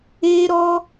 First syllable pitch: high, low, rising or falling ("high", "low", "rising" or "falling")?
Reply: high